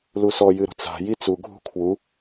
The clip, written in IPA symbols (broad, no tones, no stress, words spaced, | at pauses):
lusɔ jɨɾṳt͡sa̤ jit͡su ɡʱṳkʰwu